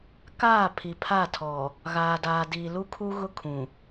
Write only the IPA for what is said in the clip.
k aː˦˨ pʰ i˨ pʰ a˦˨ tʰ ɔ˨ | ɣ aː˨ d aː˨ d iː˨ l u˦ kʰ u˦ ɣ ʊ˦ kʰ ũ˨

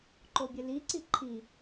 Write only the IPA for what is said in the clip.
ǃ o bʲ ɘ l i ǀ i ǃʰ i

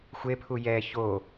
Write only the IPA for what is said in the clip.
xʷ e pʰ u j ɛ ç o

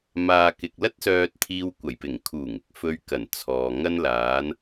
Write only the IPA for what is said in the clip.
m aː˨ k ɪ˨ k̚ l ɐ˥ t̚ s œː˧ t̚ t̪ʰ iː˧ w kʷ ɐ˨˩ j p ɪ˨˩ ŋ kʰ uː˨˩ ŋ ɪ˧ k̚ f ɵ˧ ɥ k ɐ˨˩ n t͡sʰ ɔː˨ ŋ ɐ˥ n l aː˨˧ n

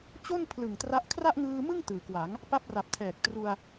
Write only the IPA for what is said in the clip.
t͡ɕ o˥˩ n pʰ l ɯ˨˩ ŋ t r a˦˥ ʔ kʰ r a˥˩ ʔ ŋ ɯː˧ m ɯ˥˩ ŋ t ɯː˩˦ k w a˩˦ ŋ | p a˦˥ p̚ r a˨˩ p̚ tʰ ɛː˨˩ k̚ t r u˧ a̯

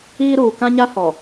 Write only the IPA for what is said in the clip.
iː˦ ɾ uː˨ k ã˦ ɲ a˦ h ɔ˨

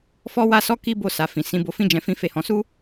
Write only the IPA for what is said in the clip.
f ɔ˦ w a˦ s ɔ˦ k i˦ b o˦˨ s a˨ f ĩ˨ s ĩ˨˦ b o˧ f ĩ˦ d͡ʒ ɛ̃˧ f ĩ˦ f e˦˨ h ɔ̃˧ s u˦

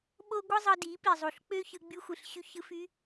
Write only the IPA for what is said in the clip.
ɓ o˦ ɡʷ ɯ˦ zˤ ɯ˧ d i˨˦ p i˨ zˤ u˨ ɬ k͡p ø˦ ç ɯ˧ ɡ͡b y˧ xʷ ɯ˨ ɬ ɕ y˧ ç ɯ˧ f y˧

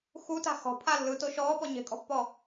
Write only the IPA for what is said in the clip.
x u t a̤ x ɔ̤ pʰ a lː ɯ t o ʃ ɔː p ɔ ɲ e̤ kʼ ɔ̤ pː ɔ

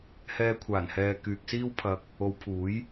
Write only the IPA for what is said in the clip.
h ɛː˧ kʷʰ aː˨˩ n h ɛː˨ k yː˨ k̚ s iː˥ w pʰ ɐ˧ k̚ | o˨˧ w pʰ uː˨˥ j

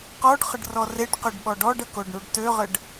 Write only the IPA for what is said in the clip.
q ɔ ɖ χ ə ɖ r ɔ r e ɖ q ø ɖ ɓ ɔ ɖ ɔ ɖ ə k o ɖ ɳ u ɖ t ø ʁ ə ɖ

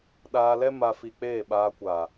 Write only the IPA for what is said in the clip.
ɗ aː˧ l ɛ˦ m a˧ f i˧ k͡p eː˦˨ ɓ aː˧ kʷ a˨

